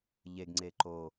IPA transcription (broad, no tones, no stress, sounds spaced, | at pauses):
ʎ e ɡ ŋ͡ǀ e ǃ o